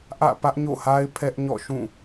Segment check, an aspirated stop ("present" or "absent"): present